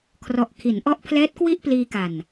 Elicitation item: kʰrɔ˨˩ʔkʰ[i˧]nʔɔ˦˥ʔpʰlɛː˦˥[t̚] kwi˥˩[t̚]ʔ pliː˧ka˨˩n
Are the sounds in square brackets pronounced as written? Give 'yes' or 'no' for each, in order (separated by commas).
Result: no, yes, no